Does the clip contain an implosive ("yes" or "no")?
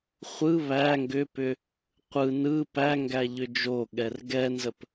yes